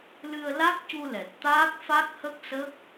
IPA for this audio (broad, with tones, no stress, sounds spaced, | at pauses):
l ɨ˧ ə̯ l a˦˥ k̚ c u˧ l ɛ˨˩ t̚ t̪ aː˦˥ k̚ f a˦˥ k̚ h ə˦˥ k̚ s ə˦˥ k̚